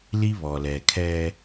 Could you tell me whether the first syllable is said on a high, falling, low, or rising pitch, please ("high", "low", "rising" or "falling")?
high